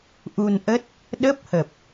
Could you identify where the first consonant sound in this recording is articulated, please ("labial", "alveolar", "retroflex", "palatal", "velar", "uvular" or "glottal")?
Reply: glottal